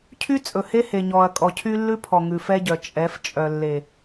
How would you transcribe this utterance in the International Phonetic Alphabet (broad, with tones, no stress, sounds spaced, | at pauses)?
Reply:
cʰ y˦ t͡sʼ ɵ˨ h e˦ h e˨ ɲ ɔ˨ ɐ̯ kʼ ɔ˨ cʰ y˦ lː ʉ˦ pʰ ɔ˨ ŋ ʉ˨ f ɛ˦ ɟ œ˨ t͡ʃʼ ɛ˨˦ f t͡ʃʼ œ˨ lː e˨